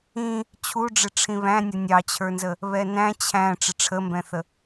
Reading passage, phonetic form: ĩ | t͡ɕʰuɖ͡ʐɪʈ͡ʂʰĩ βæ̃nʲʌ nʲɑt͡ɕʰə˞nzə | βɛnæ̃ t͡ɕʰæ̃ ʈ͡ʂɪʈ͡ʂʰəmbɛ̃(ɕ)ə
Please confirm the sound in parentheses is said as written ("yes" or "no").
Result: no